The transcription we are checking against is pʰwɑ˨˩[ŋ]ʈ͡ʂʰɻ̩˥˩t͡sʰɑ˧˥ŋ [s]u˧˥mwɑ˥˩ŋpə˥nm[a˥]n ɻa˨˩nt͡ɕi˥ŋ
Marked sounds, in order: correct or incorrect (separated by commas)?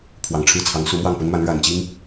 correct, correct, incorrect